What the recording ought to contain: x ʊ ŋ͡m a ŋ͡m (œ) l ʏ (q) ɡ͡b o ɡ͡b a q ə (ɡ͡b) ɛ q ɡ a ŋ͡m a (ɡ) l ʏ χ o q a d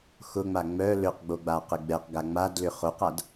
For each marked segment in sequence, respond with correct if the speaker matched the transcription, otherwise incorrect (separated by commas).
correct, correct, correct, incorrect